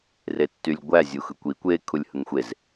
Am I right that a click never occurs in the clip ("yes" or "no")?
yes